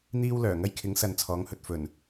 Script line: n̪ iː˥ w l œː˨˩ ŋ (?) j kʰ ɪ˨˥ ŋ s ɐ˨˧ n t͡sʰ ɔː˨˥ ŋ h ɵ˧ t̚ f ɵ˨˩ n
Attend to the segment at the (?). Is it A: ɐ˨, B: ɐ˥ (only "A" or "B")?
B